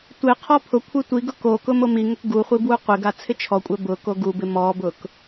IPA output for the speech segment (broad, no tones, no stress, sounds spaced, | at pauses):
tʷ e qʰ ɔ pʰ ʊ kʷʰ e tʷ i ɡ ʊ k o k ʊ m o m i ŋ ʊ k ɡ u χʷ i b w u qʷ ɪ ɡ a t͡sʰ ɪ t͡ʃʰ ɔ kʷʼ ɛ b ʊ k o ɡ u b ɪ m ɔ b ʊ k